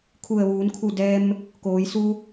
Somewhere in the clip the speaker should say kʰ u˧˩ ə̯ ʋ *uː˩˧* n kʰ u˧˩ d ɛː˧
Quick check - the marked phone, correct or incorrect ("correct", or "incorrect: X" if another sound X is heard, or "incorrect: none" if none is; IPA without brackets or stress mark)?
correct